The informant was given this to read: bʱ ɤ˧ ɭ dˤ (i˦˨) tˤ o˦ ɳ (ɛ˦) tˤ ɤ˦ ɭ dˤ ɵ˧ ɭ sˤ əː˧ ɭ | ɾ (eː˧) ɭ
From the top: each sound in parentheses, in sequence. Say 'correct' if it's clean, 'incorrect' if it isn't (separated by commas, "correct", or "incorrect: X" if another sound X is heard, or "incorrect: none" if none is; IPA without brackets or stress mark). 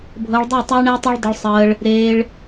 correct, correct, correct